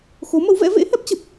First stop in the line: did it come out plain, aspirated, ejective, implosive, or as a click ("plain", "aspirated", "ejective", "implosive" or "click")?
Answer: plain